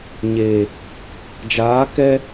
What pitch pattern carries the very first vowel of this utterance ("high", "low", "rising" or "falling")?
low